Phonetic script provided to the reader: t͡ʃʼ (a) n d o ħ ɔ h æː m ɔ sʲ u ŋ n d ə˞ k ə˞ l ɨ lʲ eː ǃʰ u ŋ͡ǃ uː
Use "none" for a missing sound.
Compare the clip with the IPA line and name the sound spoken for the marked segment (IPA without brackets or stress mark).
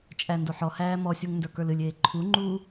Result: æ